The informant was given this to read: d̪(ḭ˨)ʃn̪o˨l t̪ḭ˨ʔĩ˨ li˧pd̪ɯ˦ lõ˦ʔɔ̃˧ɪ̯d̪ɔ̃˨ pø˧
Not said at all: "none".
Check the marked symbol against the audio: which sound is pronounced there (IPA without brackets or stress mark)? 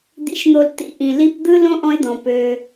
ḭ˨